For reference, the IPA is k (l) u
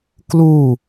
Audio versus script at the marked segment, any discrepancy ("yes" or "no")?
no